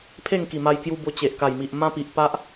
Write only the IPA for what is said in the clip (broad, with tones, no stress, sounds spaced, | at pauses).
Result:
pʰ e˥˧ ŋ k i˨˩ m a˧ j k j u˧ b o˧ t͡ɕ e˨ ʔ k a˨˩ j m i˨ ʔ m ã˦ p i˨ ʔ p a˦ ʔ